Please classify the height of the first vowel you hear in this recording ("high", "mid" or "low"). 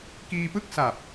high